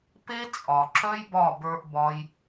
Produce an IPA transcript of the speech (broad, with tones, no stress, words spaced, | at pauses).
pe˦t͡sʼɒ˨ ǁœ˦jbɒ˦˨bə˞˧ʔbɒ˧j